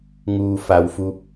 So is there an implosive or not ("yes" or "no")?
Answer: no